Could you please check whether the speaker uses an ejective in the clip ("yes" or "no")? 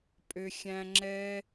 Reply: yes